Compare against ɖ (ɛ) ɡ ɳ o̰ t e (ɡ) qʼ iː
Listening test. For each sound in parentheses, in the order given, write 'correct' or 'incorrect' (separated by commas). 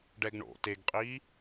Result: correct, correct